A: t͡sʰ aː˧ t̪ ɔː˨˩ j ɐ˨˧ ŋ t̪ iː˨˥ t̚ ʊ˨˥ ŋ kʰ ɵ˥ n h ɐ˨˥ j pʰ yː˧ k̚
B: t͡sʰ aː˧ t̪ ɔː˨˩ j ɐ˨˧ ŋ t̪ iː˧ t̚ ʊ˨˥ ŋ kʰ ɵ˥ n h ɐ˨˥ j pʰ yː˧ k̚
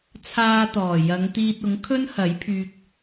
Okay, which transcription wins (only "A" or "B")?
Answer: B